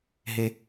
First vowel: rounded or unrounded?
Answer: unrounded